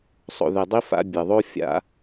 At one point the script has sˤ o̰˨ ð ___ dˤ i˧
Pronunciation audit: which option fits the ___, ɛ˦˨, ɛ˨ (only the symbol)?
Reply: ɛ˨